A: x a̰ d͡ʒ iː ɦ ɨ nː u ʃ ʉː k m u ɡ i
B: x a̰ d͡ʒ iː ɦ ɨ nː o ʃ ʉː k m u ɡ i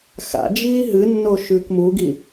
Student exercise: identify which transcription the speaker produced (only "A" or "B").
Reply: B